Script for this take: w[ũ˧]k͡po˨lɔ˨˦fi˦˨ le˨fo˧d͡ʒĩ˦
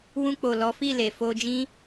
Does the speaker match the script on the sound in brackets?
yes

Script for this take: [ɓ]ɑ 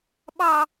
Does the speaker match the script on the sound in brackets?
yes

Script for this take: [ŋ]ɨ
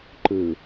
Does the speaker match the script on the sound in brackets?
no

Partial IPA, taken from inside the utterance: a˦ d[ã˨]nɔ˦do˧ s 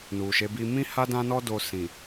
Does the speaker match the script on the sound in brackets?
no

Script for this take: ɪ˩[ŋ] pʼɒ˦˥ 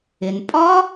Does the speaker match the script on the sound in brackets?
no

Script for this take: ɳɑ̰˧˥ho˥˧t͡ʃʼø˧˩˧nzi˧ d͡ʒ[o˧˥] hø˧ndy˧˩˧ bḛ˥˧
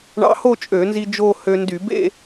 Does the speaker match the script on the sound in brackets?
no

